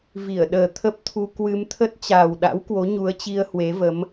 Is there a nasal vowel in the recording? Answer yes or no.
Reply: no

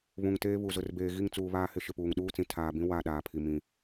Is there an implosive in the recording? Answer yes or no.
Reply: yes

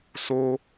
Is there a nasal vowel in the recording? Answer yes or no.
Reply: no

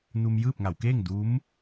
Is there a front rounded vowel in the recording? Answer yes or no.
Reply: no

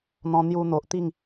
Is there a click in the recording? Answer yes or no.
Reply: no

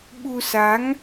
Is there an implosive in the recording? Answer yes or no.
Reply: yes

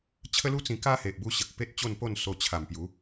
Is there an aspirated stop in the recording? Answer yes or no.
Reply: yes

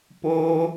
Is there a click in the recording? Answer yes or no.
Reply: no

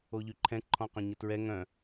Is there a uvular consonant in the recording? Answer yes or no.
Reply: yes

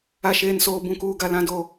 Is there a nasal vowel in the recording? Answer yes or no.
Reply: yes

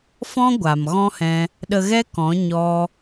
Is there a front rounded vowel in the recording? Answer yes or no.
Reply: no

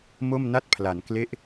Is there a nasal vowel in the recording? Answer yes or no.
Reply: no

